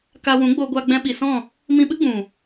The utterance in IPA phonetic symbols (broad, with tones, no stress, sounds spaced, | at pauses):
k a˧ w ũ˨˦ ɡ͡b o˧ ɡʷ a˧ ɡ͡b ɛ̃˧ ɓ i˨ s ɔ̃˦˨ | m ĩ˧ ɓ ɨ˦ ɡ͡b ũ˨